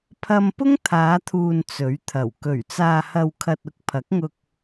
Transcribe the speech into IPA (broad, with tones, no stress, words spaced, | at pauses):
pʰɐ˧mpʊ˥ŋ t̪ʰaː˨˧t̪ʰuː˨n t͡sɵ˨˥ɥt̪ʰɐ˨˩w kɵ˨˩ɥt͡saː˨hɐ˨wkʰɐ˨t̚ ʊ˥k̚pʰɐ˨˥k̚ŋʊ˧k̚